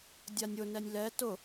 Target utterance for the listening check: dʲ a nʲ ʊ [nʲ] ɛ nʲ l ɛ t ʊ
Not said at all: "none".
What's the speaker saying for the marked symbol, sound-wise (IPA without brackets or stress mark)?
n